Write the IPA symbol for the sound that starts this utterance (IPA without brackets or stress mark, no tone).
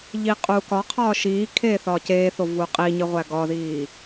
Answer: ʎ